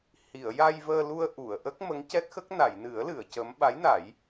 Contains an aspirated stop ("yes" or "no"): no